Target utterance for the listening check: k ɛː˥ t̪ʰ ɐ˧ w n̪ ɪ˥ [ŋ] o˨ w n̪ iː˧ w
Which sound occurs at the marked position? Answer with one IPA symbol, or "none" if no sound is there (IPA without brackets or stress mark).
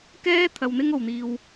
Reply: ŋ